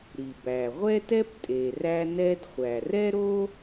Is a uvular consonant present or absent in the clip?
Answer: present